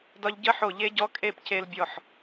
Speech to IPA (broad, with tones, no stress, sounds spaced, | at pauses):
d ɒ˧ ʎ ɟ ə˦˥ ħ o˧˩ ʎ e˦˥ ɟ ɔ˦˥ kʼ e˥˨ p c e˧ l bʲ ɔ˧˩ ħ